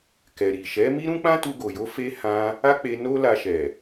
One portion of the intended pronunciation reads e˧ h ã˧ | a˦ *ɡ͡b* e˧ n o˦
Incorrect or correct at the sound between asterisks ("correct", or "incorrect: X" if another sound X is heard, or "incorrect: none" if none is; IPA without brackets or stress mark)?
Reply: incorrect: k͡p